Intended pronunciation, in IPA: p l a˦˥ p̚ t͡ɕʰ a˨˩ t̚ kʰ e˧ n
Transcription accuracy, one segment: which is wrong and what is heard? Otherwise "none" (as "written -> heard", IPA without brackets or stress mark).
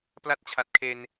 p̚ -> t̚